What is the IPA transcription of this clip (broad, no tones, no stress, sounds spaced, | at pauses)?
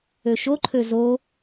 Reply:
ø ʃ o ǃʰ ø z o